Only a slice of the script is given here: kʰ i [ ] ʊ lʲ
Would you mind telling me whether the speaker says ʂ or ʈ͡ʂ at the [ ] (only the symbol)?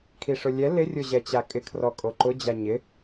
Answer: ʂ